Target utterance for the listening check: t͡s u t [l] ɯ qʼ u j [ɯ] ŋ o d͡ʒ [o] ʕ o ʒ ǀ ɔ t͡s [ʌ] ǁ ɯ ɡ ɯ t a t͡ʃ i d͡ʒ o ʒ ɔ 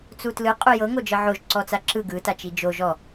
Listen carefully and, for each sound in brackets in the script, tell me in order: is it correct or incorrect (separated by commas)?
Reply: correct, incorrect, incorrect, incorrect